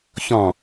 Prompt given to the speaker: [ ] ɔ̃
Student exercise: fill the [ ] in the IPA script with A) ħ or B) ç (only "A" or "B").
B